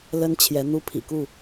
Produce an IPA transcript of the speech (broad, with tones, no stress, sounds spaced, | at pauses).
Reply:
l ə˦ n t͡ɕʰ j ɛ˨˦ n̪ u˦ pʰ ḭ˨˩ k u˥˨